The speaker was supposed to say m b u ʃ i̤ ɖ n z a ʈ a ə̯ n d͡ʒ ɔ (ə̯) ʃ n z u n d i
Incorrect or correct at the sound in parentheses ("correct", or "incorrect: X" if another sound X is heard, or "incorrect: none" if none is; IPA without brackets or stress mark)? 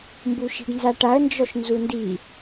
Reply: incorrect: none